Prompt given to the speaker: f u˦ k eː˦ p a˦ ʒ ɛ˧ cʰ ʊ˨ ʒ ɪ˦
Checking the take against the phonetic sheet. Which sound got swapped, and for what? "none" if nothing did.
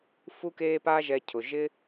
none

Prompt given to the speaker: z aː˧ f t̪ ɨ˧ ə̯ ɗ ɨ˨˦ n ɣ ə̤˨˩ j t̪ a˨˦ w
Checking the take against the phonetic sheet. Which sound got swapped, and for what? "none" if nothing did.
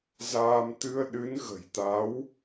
f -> m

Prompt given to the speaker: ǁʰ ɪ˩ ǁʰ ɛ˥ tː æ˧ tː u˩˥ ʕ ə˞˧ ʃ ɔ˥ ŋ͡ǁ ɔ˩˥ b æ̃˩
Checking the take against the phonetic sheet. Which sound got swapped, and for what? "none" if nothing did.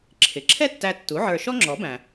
none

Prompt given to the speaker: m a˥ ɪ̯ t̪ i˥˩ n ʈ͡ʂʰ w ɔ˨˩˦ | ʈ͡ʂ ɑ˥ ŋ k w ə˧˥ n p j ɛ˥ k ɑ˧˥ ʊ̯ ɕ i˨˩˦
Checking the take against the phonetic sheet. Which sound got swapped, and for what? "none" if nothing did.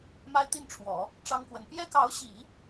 none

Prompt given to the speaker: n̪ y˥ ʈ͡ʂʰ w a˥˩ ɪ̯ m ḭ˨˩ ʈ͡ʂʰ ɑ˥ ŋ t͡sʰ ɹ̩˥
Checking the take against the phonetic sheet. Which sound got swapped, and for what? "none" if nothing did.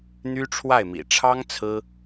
none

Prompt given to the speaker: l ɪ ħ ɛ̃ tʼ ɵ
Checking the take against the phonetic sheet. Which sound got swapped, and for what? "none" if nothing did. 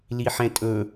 ɪ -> i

